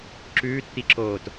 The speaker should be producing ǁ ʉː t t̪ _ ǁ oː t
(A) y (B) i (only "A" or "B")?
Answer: B